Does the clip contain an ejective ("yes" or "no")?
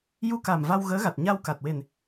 no